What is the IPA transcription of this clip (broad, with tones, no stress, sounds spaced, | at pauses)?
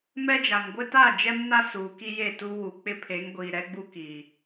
m ɛ˦ d͡ʒ a˨ ŋ ɡʷ ɪ˦ t a˦˨ d͡ʒ ɛ˦ m n a˦ s uː˨ k i˦ j e˦˨ t u˦ w u˨ k͡p ɪ˦ pʰ e˨˦ ŋ ɡʷ iː˨ ɾ ɛ˦ ɡ͡b u˦ k i˨